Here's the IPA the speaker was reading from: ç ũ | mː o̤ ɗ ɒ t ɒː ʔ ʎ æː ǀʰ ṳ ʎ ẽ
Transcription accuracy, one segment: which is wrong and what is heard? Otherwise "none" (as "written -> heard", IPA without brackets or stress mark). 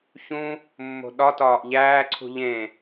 none